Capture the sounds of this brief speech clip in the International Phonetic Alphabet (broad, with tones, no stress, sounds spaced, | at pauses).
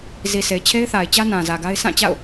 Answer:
z i˨ sʰ e˨ ɪ̯ t͡ɕʰ e˦ ɪ̯ θ a˨ ɪ̯ t͡ɕ ä˦ n ã˨ z ä˨ ɡ a˦ ɪ̯ s ã˦˨ t͡ɕ a̰˦˨ ʊ̯